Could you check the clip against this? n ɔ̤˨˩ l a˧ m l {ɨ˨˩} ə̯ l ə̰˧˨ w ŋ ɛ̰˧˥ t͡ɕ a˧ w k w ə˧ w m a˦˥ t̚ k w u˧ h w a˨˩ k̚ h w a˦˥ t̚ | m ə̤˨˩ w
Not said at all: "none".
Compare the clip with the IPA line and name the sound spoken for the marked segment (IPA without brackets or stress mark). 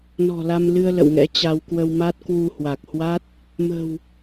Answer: ɨ˧